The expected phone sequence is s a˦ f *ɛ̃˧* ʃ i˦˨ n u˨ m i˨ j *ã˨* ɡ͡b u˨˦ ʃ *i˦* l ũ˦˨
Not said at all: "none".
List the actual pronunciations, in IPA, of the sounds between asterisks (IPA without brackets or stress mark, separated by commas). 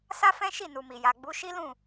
ɛ̃˦, a˨, i˦